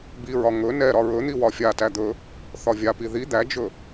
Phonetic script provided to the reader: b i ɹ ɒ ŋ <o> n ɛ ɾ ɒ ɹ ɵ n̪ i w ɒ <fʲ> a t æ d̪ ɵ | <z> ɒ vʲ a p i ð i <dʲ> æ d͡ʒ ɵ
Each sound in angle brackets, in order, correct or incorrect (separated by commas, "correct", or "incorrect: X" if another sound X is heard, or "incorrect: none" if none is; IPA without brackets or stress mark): incorrect: ɵ, correct, incorrect: θ, incorrect: d̪